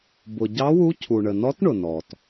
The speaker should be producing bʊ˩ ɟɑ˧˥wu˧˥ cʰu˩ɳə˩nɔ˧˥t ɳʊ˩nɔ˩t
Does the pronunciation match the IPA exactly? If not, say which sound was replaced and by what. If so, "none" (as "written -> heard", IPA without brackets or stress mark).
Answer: none